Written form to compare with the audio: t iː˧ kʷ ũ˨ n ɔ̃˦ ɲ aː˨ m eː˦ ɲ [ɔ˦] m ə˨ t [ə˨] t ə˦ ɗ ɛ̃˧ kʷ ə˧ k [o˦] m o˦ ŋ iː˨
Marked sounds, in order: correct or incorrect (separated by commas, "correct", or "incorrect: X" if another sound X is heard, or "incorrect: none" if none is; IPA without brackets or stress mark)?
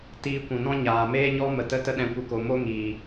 correct, incorrect: ə˦, incorrect: o˨